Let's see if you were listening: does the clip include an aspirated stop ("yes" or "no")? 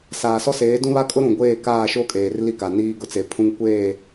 yes